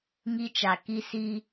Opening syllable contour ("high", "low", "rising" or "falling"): high